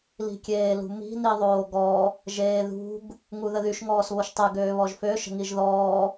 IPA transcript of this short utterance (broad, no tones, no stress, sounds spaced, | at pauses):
l i̤ kʲ eː l ṳ m i̤ n i ðˤ oː ɡ ɔ | ʒ eː ð ṳ ɡ | ŋ u ð ə ð y ʃ ŋ ɔː s β o ʃ tˤ ɛ ɡ øː β ɔ ʒ f ø ʃ ə̤ ŋ i ʒ ð ɔː